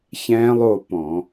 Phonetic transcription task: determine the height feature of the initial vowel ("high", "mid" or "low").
mid